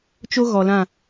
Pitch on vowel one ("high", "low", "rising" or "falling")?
high